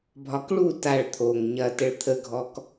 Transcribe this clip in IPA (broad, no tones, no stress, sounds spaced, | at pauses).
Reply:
bʱ ɒ k ɭ u t a ɭ t̪ʰ o ŋ ɲ ɐ t ə ɭ t̪ʰ ə ɡʱ ɔ k